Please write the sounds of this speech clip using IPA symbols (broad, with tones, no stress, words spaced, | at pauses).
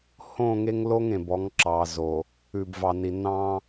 hõ˦˨ŋe˦ŋlo˦ŋ ẽ˨bɔ˨˦ŋǁɑ˨zo˨ | ʉ˨bvɑ˨ni˨ nɑ̃˦